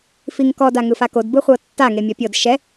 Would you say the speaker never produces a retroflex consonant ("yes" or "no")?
yes